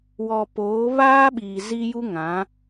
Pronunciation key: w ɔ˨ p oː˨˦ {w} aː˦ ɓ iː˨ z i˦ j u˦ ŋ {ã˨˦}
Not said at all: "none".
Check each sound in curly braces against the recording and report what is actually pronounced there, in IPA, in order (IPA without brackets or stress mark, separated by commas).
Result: β, ã˨˦